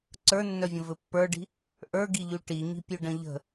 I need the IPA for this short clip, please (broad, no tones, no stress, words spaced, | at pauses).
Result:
ǀə˞nːœvʲə̃ vɘpːə˞ɖi̤ | ʔə˞ɡiʎʉ ʈiɲi̤pʲʉ ɖə̃ʎə̤